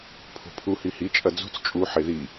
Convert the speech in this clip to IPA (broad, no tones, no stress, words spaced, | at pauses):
pʰo̤pʰu hihit͡ʃʼɐ d͡zṳt͡s t͡ʃʼuħe ði